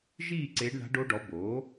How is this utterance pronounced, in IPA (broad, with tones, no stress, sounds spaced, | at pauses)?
ʒ iː˦˨ ǀ eː˧˥ ɖ ɳ a̤˧˥ ɖ o˧˥ ɖ ɔ˩˥ b oː˩˥